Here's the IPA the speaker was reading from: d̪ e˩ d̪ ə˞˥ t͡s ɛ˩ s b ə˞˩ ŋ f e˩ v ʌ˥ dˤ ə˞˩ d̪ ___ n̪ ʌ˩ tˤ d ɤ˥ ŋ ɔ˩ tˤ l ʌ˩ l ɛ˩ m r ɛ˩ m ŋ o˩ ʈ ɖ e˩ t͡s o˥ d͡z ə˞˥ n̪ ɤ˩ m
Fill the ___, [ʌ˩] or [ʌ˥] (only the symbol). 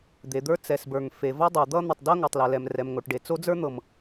ʌ˥